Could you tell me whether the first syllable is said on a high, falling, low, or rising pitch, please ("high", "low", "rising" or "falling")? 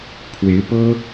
rising